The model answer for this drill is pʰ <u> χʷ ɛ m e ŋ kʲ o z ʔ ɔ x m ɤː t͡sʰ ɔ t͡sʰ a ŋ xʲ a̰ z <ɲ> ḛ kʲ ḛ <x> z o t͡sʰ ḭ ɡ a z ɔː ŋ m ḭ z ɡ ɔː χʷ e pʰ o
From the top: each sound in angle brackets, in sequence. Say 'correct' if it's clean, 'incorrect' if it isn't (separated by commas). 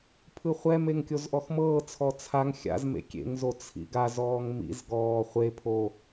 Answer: incorrect, incorrect, incorrect